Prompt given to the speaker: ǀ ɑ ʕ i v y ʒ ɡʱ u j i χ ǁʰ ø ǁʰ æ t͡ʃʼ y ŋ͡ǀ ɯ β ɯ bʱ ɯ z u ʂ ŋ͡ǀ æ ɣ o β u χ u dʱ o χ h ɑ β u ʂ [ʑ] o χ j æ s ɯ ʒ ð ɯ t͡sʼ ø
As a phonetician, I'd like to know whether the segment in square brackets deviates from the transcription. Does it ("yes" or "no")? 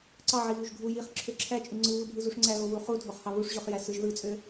no